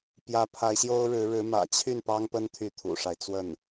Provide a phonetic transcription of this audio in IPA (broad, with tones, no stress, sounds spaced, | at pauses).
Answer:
p j ä˧˥ pʰ a˧˥ ɪ̯ ɕ j o˥ ʊ̯ ɻ ɻ̩˧˥ ɻ ɻ̩˧˥ m ä̰˨˩ t͡ɕʰ y˥˩ n p ɑ˥ ŋ p ə˥ n t̪ʰ y˥˩ t̪ʰ ṵ˨˩ ʂ a˦ ɪ̯ t͡s w ə˥˩ n